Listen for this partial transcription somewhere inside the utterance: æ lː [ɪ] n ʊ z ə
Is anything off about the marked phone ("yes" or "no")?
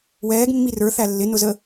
no